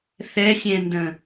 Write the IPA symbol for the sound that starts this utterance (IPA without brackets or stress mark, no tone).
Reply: θ